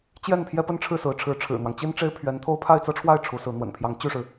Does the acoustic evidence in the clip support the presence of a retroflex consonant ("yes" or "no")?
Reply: yes